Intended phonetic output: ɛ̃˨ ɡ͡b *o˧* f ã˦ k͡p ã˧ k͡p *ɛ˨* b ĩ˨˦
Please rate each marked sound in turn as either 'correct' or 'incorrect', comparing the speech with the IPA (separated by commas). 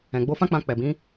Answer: correct, correct